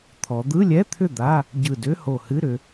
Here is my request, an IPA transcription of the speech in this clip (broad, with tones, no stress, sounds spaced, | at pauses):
t̪ʰ ɔ˩˧ d̪ ɯ˧˥˧ lʲ ɛ˧˥˧ t̪ʰ ʏ˥˩ d̪ a˧˥˧ | ɟ ɯ˧˩ d ʏ˧˥˧ h o˧˩ h ɨ˧˥˧ ɾ ʏ˩˧